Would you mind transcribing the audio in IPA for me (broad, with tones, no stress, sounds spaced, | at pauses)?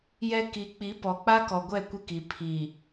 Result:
j ɛ˦ k i˨˦ k͡p i˨˦ p ɔ˨ k͡p a˦ k ɔ˨ ɡʷ ɛ˦˨ kʷ ɪ˦ k i˨ pʰ i˨